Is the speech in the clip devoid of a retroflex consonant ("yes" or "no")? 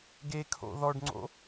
no